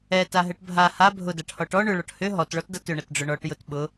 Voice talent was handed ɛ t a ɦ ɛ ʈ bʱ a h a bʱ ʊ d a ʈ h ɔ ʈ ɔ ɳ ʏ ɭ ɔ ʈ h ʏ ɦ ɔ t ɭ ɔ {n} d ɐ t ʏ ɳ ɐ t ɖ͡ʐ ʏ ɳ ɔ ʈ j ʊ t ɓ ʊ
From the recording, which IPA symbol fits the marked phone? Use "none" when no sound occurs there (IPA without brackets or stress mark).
t